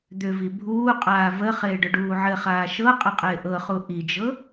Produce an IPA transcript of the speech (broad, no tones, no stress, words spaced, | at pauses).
d̪ʏvi bʱuː qʼaːvəχɪː ɖʏɖuːʕɘχaː ʃɤ qʼəqʼɪːʔɤχu ʔid͡ʒɤ